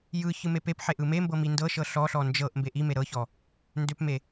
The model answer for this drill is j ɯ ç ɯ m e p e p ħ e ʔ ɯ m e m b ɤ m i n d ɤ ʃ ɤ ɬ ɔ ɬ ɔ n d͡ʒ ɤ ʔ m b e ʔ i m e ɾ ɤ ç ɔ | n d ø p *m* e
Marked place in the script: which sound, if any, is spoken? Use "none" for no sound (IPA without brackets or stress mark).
m